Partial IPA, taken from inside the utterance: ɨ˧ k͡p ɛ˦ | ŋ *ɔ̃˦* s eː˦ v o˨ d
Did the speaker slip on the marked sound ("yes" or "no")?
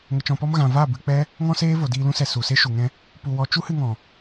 no